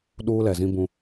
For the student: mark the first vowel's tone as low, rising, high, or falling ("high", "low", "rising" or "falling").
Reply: high